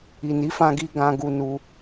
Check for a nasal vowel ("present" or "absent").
present